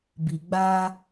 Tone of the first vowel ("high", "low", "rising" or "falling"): low